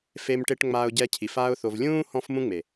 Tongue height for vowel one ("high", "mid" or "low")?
mid